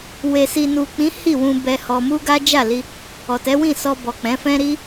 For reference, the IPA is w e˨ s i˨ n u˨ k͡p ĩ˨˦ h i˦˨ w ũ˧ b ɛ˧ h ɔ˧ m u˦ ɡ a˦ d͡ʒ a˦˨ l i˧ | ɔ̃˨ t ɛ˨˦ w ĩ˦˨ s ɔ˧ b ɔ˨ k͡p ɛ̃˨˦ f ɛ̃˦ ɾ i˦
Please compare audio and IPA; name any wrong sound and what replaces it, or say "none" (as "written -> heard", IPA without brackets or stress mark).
ɔ̃˨ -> ɔ˨